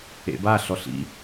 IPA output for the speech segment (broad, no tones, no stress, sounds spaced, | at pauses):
ḛ b a ɬ ɔ ɬ ḭ